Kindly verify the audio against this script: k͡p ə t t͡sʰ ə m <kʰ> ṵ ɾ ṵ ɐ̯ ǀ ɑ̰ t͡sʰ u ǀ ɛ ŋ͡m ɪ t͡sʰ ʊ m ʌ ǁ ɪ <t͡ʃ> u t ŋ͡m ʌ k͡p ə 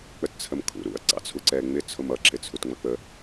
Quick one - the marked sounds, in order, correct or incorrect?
correct, incorrect: t͡sʰ

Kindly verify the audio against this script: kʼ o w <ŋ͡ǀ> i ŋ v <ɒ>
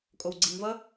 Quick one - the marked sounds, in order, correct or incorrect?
incorrect: ɡ͡ǀ, incorrect: ʌ

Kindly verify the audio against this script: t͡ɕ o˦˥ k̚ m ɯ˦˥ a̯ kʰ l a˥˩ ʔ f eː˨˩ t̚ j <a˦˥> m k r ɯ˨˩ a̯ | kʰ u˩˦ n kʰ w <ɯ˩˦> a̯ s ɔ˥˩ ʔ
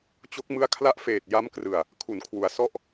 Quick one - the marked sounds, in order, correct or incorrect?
correct, incorrect: u˩˦

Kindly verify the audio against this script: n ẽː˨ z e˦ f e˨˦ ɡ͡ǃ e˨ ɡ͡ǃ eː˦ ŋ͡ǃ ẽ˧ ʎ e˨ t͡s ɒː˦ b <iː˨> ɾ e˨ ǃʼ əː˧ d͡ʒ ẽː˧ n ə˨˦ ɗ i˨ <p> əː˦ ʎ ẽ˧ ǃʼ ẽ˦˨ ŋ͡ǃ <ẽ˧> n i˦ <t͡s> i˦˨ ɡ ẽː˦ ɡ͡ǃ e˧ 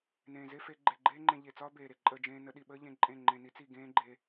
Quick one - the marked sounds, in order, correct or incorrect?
incorrect: eː˨, incorrect: ɓ, correct, correct

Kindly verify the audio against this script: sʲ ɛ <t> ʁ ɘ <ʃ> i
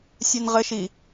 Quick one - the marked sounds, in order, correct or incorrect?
incorrect: n, correct

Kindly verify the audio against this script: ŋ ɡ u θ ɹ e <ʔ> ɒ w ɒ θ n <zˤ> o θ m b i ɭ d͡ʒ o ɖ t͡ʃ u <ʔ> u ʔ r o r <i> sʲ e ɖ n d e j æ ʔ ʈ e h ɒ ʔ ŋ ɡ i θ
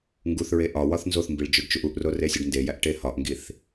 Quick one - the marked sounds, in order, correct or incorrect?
correct, incorrect: z, correct, incorrect: e

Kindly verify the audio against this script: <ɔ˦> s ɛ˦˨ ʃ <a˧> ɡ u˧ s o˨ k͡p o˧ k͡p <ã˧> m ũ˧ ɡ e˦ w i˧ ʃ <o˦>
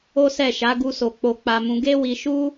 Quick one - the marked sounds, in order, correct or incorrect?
incorrect: o˦, incorrect: a˨˦, incorrect: a˧, incorrect: u˦

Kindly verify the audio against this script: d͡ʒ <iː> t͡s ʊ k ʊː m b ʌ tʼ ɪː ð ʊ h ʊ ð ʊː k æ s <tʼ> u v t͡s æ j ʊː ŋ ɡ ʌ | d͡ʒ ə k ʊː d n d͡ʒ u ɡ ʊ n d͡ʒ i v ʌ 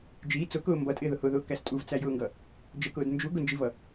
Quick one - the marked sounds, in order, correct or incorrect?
correct, correct

